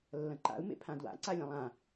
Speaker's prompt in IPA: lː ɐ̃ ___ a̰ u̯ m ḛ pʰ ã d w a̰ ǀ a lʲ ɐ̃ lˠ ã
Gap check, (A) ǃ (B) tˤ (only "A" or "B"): A